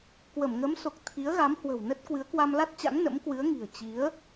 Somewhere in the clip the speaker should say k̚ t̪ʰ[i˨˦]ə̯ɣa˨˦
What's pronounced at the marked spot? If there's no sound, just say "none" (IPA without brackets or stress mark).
i˨˦